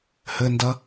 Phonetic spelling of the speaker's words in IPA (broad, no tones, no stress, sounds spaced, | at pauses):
h ɘ n d ɐ